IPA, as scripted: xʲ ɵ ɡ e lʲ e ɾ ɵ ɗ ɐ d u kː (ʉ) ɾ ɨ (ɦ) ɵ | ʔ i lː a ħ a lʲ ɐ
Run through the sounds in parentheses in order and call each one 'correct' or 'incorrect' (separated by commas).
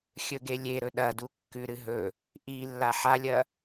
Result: correct, correct